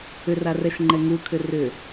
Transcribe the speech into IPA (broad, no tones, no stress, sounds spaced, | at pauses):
ʏ r a r ɛ ʃ ŋ͡ǃ ɛ ŋ u kʰ ʏ r ʏ